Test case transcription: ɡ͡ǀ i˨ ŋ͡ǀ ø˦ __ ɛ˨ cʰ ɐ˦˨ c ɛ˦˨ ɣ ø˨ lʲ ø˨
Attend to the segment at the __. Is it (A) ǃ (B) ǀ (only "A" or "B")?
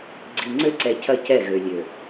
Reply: B